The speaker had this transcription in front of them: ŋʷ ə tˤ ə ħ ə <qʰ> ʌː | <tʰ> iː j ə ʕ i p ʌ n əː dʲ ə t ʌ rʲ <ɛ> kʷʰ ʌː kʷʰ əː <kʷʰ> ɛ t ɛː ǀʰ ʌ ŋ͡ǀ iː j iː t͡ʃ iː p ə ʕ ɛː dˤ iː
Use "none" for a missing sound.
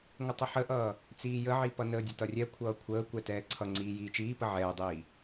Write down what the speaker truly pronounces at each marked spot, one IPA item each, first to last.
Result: ʔ, t͡s, ɛ, kʷ

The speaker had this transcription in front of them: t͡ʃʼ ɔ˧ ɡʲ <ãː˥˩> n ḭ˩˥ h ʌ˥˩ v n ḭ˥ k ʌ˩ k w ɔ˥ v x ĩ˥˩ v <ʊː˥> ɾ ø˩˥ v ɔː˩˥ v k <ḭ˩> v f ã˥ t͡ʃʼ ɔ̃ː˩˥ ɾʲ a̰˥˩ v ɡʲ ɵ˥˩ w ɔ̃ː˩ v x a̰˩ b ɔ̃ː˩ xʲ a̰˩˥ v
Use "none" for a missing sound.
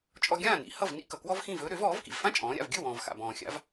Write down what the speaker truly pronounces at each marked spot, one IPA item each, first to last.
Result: ãː˥˩, ɵː˥, ḭ˩

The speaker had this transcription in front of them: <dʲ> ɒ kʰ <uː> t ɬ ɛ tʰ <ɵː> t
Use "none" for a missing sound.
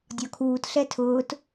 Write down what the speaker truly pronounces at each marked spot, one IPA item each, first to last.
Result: dʲ, uː, ʊː

